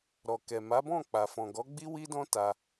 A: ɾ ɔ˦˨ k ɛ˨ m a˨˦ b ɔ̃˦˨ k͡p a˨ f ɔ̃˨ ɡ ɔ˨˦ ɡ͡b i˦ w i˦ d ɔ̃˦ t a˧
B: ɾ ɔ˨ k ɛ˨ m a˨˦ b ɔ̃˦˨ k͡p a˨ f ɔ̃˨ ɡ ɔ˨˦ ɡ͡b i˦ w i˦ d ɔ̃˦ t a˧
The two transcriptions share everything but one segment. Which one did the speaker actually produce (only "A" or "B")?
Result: B